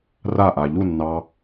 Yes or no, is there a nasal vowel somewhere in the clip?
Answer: no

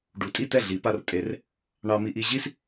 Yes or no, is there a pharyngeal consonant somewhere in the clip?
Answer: no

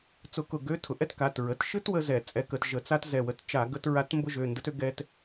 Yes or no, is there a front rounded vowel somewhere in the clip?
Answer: yes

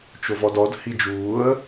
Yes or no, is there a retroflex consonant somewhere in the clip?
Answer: no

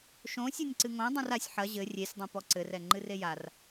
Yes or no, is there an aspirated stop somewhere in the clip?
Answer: no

